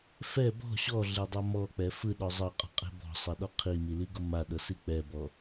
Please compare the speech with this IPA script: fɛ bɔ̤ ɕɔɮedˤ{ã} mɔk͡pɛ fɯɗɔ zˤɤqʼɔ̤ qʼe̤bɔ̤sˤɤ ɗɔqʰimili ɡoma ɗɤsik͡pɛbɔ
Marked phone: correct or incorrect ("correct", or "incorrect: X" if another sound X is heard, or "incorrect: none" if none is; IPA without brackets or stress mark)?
incorrect: a